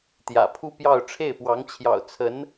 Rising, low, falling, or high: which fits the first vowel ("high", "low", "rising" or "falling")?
low